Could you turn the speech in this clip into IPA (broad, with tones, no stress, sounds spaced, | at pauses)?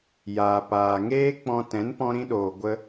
j aː˨ p aː˨ ŋ eː˦ k͡p ɔ̃˧ t ɛ̃˨˦ n p ɔ̃˧ ɾ ĩ˧ ɗ oː˨ ɡʷ ə˦